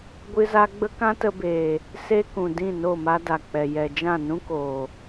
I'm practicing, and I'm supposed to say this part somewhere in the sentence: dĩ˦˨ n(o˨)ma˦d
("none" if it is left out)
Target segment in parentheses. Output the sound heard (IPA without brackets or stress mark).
o˦˨